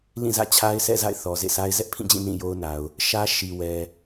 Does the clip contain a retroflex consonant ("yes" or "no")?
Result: no